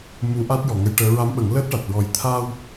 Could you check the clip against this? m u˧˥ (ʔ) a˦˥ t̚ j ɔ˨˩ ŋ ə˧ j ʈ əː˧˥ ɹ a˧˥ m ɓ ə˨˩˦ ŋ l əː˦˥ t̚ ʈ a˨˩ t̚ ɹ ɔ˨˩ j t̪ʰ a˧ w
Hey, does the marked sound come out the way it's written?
yes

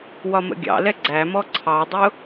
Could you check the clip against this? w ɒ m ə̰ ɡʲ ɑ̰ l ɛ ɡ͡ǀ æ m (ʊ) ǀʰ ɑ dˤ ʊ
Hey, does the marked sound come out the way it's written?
no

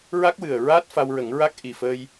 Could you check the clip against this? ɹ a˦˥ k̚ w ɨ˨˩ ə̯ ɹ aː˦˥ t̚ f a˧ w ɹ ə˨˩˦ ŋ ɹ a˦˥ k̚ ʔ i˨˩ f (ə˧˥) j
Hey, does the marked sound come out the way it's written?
no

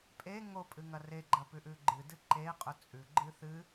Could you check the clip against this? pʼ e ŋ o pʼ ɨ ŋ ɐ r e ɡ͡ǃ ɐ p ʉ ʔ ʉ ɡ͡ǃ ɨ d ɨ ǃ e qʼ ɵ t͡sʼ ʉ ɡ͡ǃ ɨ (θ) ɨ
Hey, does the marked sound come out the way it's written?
yes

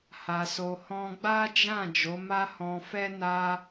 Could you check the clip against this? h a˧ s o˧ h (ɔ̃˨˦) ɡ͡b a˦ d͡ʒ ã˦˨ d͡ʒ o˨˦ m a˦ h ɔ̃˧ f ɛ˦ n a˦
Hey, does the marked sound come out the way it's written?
no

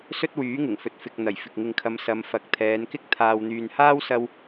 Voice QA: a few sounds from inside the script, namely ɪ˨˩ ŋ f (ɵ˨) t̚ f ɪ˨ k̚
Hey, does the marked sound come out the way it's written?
yes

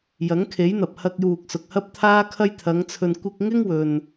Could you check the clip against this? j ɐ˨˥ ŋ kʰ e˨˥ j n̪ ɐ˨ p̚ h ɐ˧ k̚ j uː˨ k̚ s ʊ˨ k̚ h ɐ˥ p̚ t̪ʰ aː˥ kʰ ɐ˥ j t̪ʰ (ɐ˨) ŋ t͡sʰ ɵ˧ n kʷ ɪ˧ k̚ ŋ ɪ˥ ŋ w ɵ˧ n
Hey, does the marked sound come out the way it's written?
no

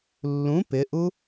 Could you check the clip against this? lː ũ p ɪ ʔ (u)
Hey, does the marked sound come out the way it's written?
yes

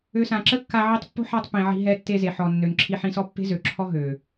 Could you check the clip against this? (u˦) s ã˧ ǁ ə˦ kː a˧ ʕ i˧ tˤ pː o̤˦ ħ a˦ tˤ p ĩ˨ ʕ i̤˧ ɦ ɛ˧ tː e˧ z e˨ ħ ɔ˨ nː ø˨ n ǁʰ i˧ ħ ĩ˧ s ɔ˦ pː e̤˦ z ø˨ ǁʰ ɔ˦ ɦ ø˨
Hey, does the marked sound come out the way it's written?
no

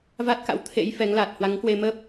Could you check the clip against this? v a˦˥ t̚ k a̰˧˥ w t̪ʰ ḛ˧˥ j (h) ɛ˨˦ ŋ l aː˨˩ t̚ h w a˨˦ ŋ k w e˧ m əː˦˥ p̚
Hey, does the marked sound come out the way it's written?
no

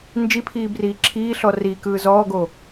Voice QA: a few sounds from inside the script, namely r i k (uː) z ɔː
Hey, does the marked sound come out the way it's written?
no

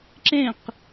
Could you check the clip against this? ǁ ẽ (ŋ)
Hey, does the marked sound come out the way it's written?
no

